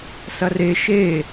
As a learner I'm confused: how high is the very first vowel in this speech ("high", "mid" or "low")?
low